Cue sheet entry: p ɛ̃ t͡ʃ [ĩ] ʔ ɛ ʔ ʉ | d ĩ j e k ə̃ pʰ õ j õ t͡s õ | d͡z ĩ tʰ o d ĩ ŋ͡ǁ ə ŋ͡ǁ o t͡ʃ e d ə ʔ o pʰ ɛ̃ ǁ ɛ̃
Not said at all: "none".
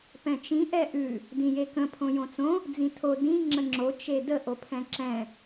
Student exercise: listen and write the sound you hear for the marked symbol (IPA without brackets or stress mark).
ĩ